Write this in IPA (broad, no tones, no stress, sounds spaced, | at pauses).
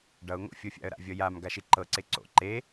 ɖ ʌ ʊ̯ ŋ o̰ fʲ ɤ fʲ a̰ ə̯ ɾ a̰ vʲ ʌ j a m ɡ a ʃ i ǃ ɤ ǀ e ǀ o̰ ǃ e